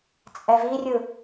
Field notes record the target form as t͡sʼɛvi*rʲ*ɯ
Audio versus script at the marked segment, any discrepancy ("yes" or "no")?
no